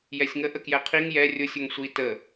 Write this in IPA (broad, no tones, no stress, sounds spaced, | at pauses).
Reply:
j ɛ sʲ ŋ ə ʔ ə k j ɛ qʰ i ŋ j ɛ rʲ ʊ sʲ ʊ ŋ sʷ i t ə